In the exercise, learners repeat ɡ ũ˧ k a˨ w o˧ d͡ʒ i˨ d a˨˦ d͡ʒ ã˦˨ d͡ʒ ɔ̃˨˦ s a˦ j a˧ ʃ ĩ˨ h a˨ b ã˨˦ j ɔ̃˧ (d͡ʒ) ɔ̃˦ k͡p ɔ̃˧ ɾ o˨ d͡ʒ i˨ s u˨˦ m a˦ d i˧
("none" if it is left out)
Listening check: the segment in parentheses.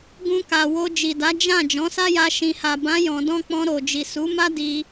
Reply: d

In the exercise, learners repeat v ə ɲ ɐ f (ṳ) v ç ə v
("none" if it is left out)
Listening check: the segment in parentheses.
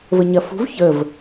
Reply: ṳ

